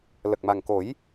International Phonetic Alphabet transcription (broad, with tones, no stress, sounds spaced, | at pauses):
l ə˨˩ k̚ m a˨˩ ŋ k o˨˩˦ j